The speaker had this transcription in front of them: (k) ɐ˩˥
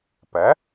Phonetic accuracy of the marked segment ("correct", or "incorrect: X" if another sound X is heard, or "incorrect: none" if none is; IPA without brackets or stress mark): incorrect: p